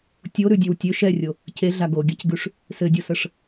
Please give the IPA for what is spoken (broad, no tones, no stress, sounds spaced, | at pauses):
tʲ o ɾ ʉ dʲ ø w tʲ ø ʃ ɛ rʲ o | c e ɮ a ɡ o ɡʲ a c ɡ ʉ ʂ | s ɘ dʲ o s ə ʂ